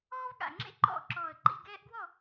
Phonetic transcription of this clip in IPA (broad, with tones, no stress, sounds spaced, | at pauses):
ɔː˦ v ɠ a̰˨˩ ŋ͡ǁ ḛ˥˨ ǃ ɔ̰˥˨ ǁ ɔː˨˩ ə̯ ǃ ḭ˥˨ ɡ ɛː˦ ʔ ɡ w ɔ˥˨